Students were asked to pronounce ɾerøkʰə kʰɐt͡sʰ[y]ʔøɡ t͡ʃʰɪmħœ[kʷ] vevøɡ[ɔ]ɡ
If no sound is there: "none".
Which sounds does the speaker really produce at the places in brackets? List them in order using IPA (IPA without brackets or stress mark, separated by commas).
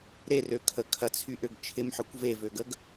y, kʷ, ə